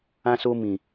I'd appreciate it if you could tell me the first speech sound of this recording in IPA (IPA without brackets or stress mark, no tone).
ã